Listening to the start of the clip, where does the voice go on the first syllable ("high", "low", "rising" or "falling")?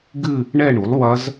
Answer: falling